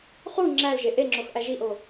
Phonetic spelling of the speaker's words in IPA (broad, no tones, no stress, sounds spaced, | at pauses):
χ u ŋ͡ǁ æ l ʒ e ʔ e ŋ͡ǁ o x ʔ æ ʒ i ʔ o